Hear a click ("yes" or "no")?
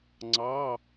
yes